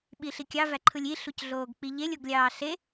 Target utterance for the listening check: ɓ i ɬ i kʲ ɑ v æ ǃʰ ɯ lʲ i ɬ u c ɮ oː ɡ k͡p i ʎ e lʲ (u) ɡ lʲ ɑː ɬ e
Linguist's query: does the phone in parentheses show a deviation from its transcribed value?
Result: yes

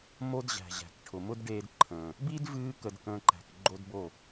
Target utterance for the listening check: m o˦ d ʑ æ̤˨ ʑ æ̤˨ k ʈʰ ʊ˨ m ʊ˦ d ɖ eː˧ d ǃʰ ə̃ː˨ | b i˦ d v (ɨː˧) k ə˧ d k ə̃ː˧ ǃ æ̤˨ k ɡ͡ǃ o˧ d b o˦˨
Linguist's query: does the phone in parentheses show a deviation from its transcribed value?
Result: no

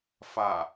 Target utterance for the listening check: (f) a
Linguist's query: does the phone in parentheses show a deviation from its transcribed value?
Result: no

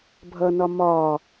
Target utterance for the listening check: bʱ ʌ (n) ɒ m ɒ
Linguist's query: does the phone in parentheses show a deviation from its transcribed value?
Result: no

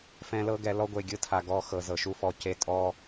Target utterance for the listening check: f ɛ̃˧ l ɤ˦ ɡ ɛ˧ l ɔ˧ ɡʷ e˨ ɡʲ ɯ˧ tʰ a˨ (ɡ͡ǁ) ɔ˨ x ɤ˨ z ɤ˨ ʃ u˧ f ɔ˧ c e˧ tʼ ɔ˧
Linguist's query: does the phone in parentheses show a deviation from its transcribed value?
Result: yes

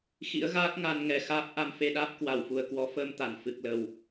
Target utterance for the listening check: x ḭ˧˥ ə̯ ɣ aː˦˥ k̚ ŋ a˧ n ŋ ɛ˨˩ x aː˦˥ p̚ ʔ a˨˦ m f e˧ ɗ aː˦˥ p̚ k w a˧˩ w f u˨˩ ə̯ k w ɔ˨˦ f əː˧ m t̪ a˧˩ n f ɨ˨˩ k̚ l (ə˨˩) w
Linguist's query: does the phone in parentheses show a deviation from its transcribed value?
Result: no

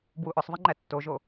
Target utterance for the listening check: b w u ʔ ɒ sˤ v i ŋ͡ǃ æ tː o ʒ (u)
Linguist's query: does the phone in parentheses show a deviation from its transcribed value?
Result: yes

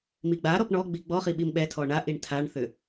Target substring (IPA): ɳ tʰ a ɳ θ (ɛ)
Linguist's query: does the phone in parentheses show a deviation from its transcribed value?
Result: yes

